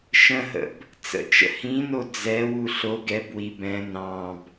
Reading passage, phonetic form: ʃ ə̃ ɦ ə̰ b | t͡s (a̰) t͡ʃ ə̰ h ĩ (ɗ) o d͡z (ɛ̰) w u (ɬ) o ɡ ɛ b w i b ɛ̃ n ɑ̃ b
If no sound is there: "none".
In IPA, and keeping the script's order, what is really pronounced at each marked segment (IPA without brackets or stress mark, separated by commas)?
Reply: ə̰, n, ɛ, ɬ